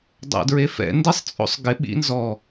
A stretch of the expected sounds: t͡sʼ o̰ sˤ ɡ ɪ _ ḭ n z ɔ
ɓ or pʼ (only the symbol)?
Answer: ɓ